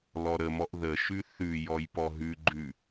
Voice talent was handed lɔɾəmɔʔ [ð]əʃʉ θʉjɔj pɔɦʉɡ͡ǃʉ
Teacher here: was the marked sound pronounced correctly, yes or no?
yes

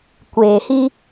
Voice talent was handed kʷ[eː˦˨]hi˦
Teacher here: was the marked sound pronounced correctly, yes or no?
no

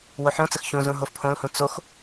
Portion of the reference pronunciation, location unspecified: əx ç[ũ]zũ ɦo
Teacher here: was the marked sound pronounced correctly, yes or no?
yes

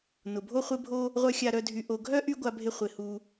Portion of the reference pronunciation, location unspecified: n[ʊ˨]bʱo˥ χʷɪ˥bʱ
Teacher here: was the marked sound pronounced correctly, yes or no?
no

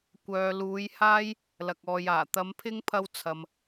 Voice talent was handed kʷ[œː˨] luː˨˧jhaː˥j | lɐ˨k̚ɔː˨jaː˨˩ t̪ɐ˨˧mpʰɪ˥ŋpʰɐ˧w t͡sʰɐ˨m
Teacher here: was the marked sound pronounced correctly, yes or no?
yes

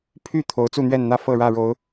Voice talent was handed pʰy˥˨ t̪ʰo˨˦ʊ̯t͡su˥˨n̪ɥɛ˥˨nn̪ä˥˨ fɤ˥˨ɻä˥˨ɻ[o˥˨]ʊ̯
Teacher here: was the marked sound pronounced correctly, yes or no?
no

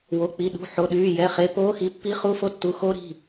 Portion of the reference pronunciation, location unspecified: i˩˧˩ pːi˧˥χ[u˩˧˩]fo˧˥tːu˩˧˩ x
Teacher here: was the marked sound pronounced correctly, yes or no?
no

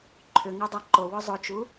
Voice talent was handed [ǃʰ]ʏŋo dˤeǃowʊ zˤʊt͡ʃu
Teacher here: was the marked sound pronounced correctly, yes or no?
yes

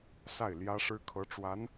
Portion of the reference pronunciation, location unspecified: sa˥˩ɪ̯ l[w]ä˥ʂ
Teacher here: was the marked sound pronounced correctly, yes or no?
no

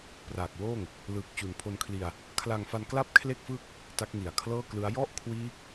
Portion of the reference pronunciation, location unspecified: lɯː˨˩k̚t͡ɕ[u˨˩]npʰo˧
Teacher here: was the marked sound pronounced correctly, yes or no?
yes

